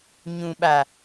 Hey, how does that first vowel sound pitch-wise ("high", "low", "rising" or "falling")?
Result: low